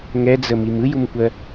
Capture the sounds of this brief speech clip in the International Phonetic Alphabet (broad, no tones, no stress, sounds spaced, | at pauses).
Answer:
ŋ ɛ d͡z ə m i m ɯ j u m kʷ ɜ